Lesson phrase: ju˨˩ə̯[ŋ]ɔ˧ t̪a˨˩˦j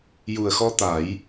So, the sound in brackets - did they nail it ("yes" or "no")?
no